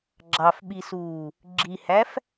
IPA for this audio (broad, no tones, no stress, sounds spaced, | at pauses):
ɡ͡ǁ ɑ f ɓ i s uː | ɡ͡ǁ i h æ f